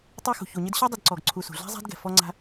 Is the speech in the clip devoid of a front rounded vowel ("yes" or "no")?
yes